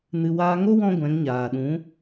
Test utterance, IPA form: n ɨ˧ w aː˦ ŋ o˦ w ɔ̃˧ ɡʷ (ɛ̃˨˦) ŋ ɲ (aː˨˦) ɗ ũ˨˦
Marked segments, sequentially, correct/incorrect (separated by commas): correct, incorrect